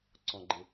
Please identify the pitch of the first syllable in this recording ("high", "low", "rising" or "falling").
low